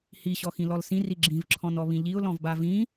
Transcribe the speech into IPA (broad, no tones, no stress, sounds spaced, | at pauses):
h i ɕ ɔ x ĩ l ɔ l s ĩ r i ɡ͡ǁ ĩ v ǁʰ ɔ̃ n ɔ β ĩ ʎ i ʊ̯ l ɔ̃ v b a v ĩ